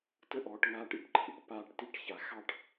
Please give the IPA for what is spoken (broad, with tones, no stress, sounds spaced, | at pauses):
t ə˥˧ ʔ ɔː˩˧ ʈ ŋ aː˧ ʈ ḭ˥˧ ʈ ǃʰ ḭ˩˧ ʈ p aː˧ ʈ t i˥˧ ʈ ç a˩˧ x ɑ˥˧ ʈ